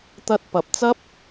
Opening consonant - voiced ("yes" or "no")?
no